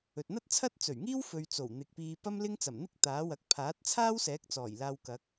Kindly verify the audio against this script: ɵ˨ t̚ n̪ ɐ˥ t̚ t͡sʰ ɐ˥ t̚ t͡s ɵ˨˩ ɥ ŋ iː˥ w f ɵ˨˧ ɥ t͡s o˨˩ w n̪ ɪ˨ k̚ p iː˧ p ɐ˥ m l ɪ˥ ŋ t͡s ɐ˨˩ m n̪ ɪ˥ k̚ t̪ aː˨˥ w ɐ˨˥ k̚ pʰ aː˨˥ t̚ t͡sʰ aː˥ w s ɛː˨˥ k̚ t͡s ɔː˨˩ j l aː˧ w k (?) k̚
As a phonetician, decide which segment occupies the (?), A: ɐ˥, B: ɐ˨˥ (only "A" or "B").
B